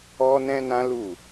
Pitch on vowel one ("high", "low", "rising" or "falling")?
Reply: high